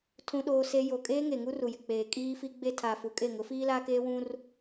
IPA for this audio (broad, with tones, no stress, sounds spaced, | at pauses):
tʰ ũ˦ ɗ oː˦ s e˦ j o˨ kʼ eː˦ ŋ e˨ ŋ u˦ r u˨ j ɪ˨ k͡p eː˨ kʼ iː˦ f i˦ ɡ͡b e˦ tʰ aː˨ f u˨ kʼ e˦˨ ŋ ʊ˨˦ f iː˦ l aː˦ k eː˦ w ũ˦ r